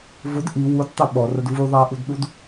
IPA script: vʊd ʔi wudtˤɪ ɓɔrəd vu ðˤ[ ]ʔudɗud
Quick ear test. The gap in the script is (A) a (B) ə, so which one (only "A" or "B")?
A